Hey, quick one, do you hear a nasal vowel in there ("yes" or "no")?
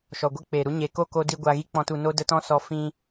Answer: yes